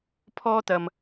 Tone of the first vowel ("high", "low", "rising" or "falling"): high